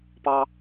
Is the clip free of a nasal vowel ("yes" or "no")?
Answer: yes